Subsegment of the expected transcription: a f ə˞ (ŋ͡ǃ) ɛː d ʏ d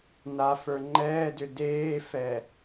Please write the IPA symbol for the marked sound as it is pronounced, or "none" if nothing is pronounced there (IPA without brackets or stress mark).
ŋ͡ǃ